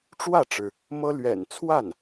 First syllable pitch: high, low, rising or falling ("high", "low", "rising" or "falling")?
falling